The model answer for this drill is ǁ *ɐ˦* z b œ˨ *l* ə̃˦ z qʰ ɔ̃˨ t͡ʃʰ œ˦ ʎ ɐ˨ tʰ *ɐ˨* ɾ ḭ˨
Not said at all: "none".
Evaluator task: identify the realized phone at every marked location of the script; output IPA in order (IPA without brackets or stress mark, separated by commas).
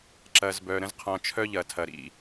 ɐ˨, ɾ, ɐ˨